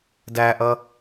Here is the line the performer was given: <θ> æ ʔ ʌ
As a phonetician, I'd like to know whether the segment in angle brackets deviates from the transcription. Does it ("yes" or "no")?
yes